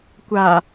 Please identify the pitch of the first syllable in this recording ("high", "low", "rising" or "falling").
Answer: low